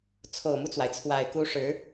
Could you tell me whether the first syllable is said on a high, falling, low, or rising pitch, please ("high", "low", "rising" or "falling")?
low